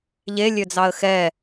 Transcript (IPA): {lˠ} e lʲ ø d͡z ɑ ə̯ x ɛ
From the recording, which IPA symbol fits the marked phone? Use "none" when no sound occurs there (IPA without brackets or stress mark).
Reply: ʎ